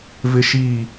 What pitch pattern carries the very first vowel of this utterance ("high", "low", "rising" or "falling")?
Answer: high